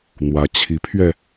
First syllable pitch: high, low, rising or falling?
rising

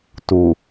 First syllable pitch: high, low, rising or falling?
low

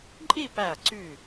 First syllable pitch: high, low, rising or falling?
falling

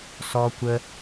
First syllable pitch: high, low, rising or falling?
high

